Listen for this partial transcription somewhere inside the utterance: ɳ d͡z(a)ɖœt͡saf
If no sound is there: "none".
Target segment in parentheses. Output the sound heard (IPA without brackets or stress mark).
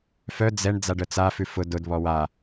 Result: a